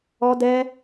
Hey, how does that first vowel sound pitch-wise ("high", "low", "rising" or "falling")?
high